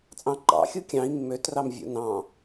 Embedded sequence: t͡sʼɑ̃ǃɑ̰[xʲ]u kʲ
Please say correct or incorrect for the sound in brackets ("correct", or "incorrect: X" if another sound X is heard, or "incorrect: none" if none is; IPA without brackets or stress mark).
correct